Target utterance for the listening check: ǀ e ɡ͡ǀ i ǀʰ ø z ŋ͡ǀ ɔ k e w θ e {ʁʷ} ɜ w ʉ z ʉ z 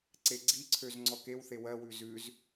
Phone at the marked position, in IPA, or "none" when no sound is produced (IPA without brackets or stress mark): w